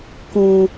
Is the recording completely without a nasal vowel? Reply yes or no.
no